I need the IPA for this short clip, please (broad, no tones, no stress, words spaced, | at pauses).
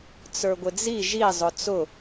t͡sə˞ɡʷɪd͡zi ʒi zˤʊt͡sʊ